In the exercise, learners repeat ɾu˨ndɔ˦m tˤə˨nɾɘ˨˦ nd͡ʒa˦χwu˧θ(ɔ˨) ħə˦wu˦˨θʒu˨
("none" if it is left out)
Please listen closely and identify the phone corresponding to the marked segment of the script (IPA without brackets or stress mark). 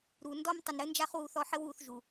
ɔ˧